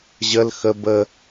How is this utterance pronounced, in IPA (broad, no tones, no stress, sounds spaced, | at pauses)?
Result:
ʑ ə l x ə b ə